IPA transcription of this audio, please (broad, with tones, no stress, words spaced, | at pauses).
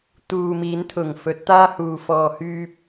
t̪uː˨miː˨˧nt̪ʰʊ˨˩ŋ fɵ˨˥t̚t̪aː˥huː˨ fɔː˨hyː˧p̚